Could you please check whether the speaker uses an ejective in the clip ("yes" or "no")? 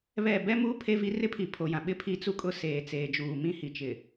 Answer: yes